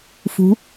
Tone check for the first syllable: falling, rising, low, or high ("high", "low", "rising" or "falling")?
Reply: rising